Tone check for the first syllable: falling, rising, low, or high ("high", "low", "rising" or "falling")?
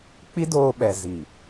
high